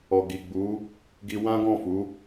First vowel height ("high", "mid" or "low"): mid